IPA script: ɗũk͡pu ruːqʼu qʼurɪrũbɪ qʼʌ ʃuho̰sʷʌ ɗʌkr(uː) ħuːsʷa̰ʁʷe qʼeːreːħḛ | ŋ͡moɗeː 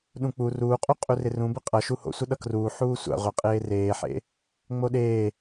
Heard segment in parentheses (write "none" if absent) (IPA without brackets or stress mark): uː